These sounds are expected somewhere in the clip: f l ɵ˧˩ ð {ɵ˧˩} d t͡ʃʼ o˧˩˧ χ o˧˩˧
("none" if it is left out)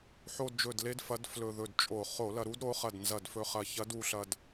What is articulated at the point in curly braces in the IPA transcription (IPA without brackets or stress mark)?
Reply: ɵ˧˩